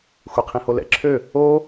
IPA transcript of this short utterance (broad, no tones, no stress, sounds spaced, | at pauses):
xʷ e qʰ ĩ h o l ɛ̰ ǁʰ ø | o